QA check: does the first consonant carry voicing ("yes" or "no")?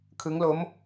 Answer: no